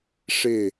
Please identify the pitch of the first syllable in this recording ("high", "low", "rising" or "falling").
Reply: falling